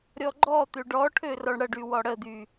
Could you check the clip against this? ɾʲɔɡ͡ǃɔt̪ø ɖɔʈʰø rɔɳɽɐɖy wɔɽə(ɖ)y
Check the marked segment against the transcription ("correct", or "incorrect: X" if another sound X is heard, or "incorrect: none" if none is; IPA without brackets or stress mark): incorrect: d̪